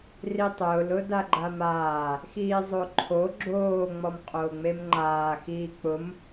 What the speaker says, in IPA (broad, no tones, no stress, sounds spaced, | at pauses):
r i tˤ ʊː l ʊ d a ɡ͡ǃ a m aː | x iː zˤ o ǃʰ o ɡ͡ǁ oː ŋ͡m ɔ m qʼ oː ŋ͡m e m ŋ͡ǃ aː x iː k͡p ʊ m